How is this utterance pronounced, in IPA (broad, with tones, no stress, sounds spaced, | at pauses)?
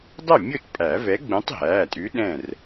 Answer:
dˤ ə˥˩ mʲ ʊ˥˩ t pʼ æ˨˩˦ v ɛ˨˥ ɡ͡b ũ˨˥ tˤ ɦ æː˩˧˩ tʼ ʉ˨˥ ɗ ɛ̃˥˩ r